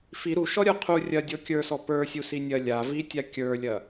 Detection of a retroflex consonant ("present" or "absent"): absent